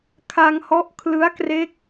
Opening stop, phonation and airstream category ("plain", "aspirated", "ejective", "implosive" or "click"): aspirated